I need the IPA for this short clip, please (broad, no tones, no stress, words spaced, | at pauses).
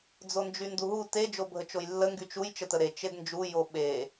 d͡zond͡ʒynduɦu te d͡ʒobʱət͡ʃojlːə ŋɡyt͡ʃuj t͡ʃətəɾe t͡ʃednd͡ʒu joɓe